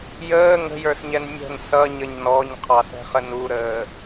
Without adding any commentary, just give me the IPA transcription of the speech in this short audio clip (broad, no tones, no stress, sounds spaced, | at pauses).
j əː ŋ ə̤ j ə˞ s ɲ ɛ n mʲ ə̤ n s ʌ ɲ ə ɲ n ɔ ɲ qʰ ɑ s ɛ̤ χ ə n u ɾ əː